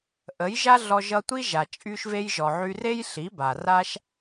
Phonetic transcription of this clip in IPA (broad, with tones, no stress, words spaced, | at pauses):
ʔə˨˦jʒa˦ ɮɔ˧ʒʌ˧ tʷi˦ʒa˨ t͡ʃʼy˧ʃve˧jʒɔ˨ ʕy˧re˦j ɬi˨˦ba˨ ra˦ʃ